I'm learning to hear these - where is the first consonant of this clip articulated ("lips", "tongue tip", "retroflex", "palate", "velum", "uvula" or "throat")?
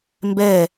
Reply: lips